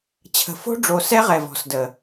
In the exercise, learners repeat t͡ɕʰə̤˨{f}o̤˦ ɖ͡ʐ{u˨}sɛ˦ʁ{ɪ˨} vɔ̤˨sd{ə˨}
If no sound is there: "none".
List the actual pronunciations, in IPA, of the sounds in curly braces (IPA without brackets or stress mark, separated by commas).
f, o˨, ɛ˨, ə˨